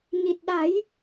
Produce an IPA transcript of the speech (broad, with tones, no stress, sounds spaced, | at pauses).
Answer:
ɲ i˨˩ t̚ ɗ a˨˩˦ j